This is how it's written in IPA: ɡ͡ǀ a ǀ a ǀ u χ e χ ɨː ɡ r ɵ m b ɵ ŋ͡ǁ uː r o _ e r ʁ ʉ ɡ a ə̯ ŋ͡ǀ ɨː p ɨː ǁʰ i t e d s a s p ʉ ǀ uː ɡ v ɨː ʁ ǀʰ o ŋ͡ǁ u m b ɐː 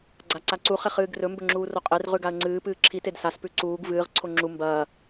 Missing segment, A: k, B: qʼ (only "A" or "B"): B